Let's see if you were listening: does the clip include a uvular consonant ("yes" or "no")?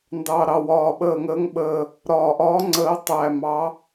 no